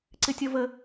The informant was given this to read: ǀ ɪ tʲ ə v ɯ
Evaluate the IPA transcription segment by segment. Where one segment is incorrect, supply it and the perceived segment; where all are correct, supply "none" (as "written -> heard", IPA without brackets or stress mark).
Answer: ɯ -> ə